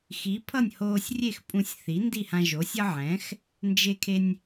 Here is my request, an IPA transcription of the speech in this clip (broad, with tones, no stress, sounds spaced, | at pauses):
x i˩˥ pʰ ʌ˥˩ nʲ h oː˧ sʲ rʲ e˥˩ x pʼ ũ˧ sʲ θ i˩˥ n d i˥˩ h ã˧ ʒ o˩˥ sʲ ʌ˥ ʕ ɛ̃˩˥ x | n d͡ʒ e˧ kʰ e˧ nʲ